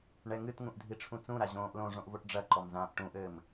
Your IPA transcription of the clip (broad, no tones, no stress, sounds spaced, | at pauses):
ɳ ɛ ŋ ɨ t ŋ ũ ʔ dʱ i ʈ͡ʂʰ ũ t͡s ũ ɾ a ʑ õː ʔ l õ ʐ õ ʔ v o ʈ ɖ͡ʐ ɐ ǃ ɔ m z ãː ʔ ʈ ũ ʔ ɘː m